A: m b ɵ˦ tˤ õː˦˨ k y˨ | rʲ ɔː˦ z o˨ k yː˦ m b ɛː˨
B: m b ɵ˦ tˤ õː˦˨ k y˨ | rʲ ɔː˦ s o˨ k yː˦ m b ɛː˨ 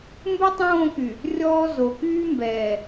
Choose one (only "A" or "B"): A